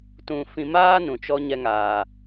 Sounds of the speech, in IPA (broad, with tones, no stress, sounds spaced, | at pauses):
t ũ˧ f ĩ˧ m aː˦ n ũ˨ t͡ʃ ɔ˧ ɲ ɛ˧ ŋ aː˨